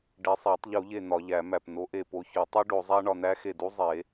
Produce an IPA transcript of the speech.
ɖ e˨˦ sˤ æ˨˩˦ tˤ ʎ u˨˩˦ ʎ e˧˩ n̪ ɒ˨˩˦ ʎ æ˨˩˦ m æ˧˩ p n o˨˦ ʔ e˧˩ p o˨˦ ç o˨˩˦ tˤ u˦˥ ɖ o˨˩˦ zˤ æ˦˥ ɳ ɒ˧˩ n̪ æ˦˥ x e˧˩ d u˦˥ zˤ e˨˩˦

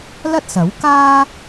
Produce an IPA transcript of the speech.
l ɐ˥ t̚ s ɐ˨˥ w k aː˥

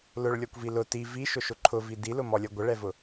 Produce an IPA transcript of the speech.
l ʊ ɭ lʲ ɔ kʷ v i l ʊ t i v i ʃ ʊ ʃ ʊ ǃʰ ʊ v i d i l ʊ m ɔ lʲ ʌ ɡʷ ə ɭ ɛ v ʊ

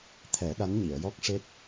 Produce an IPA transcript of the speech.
t̪ʰ ɛ˨˩˦ ɗ a˧˥ n ɲ i˨˩˨ ə̯ j ɔ˦˥ k̚ ʂ e˦˥ t̚

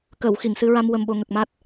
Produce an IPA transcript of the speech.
k ə˨˩˨ w x i˨˩˨ ŋ s ɨ˧ ɹ a˧ m w ə˧ m ɓ o˧ ŋ ə˨˩ k̚ m a˦˥ t̚

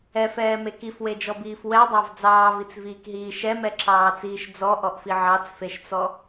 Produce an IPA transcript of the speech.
ɛ f ɛː m e k i f w e d͡ʒ ɔ b iː f w ɛ dˤ ɑ v d͡z ɑː v i t͡s v iː k ɦ iː ʃ ɛ m ɛ ǁ ɑː t͡s iː ʃ d͡z ɔ ʔ ɔ ʔ f i ʕ ɑ t͡s f e ʃ t͡s ɔ

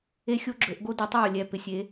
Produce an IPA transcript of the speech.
e˥ xʲ o˥ ɡ͡ǁ ɵ˩˥ ʔ ɡ o˥ d i˩˥ tˤ w o˨ lʲ ɛ˥˨ p ɪ˥˨ sʲ e˩˥

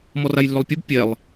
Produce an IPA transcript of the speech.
m ɔ r a j lː ʏ lˠ pʲ ɘ b pʲ ɛ lˠ

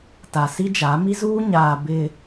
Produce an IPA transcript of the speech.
t a˨ s i˦ d͡ʒ a˨˦ m i˦ z uː˦ ɲ aː˨ b ɪ˨

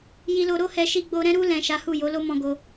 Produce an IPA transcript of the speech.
j i˧ l o˧ ɾ o˦ h ɛ˧ ʃ i˧ ɡ͡b o˧ ɾ ɛ̃˦ ɾ u˧ l ɛ̃˨ ʃ a˨˦ h u˦˨ j o˨˦ l o˦ m ɔ̃˦ ɡ o˦

